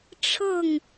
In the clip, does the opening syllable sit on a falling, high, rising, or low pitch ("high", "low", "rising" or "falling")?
falling